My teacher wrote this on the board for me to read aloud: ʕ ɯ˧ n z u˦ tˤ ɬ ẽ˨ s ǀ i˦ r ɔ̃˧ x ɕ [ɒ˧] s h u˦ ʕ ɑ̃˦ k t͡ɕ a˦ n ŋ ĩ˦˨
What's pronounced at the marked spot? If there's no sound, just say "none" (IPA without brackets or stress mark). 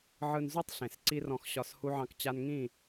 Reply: ɒ˧